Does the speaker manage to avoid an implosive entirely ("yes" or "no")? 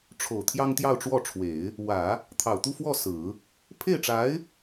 yes